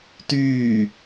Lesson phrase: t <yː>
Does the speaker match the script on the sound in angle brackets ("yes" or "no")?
yes